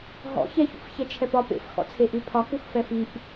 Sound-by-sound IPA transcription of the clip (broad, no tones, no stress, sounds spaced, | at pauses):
ɦ ɔ̰ ç ɛ ç ṵ f ç ɛ t͡ʃʰ ɛ p ɒ p ḛ f x ɔ̰ t͡sʰ e ʔ ʉ pʰ ɒ k u x f ɛ f i ʔ